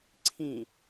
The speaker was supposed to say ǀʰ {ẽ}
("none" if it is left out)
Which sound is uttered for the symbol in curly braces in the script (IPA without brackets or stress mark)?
ĩ